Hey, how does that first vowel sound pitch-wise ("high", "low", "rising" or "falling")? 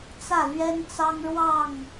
falling